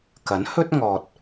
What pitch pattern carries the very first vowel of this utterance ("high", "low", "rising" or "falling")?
rising